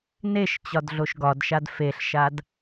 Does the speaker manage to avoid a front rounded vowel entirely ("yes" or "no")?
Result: yes